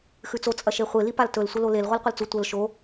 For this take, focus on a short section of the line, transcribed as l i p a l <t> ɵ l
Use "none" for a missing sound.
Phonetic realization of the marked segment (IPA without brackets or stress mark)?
t